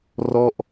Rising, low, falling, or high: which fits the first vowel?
falling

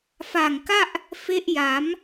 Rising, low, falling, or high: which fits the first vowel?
low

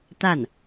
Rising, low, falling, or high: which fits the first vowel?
falling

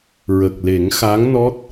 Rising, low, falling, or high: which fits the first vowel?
low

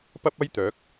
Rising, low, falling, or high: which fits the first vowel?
high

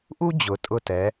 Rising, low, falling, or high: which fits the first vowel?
high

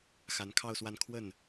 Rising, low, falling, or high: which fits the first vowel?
rising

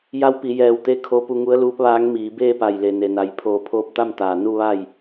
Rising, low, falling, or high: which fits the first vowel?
rising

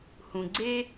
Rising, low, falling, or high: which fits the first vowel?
low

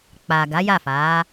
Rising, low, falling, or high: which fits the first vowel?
low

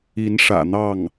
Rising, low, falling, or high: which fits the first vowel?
rising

